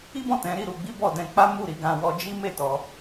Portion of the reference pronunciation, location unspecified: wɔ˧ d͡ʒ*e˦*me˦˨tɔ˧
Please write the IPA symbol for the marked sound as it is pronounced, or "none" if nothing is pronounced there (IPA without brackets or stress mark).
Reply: i˦